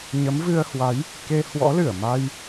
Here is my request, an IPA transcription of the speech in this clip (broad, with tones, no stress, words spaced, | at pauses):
ɲə˨˦mvɨ˧ə̯hwa˨˦j | ke˧ hwɔ̰˧˥lɨ˧˩ə̯ma˧j